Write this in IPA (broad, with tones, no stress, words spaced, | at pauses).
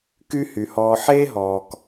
ky˦hy˩hɔː˨ ħeː˥ɦɔː˩k